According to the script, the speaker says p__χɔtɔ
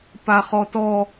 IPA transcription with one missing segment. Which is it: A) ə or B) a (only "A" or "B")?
B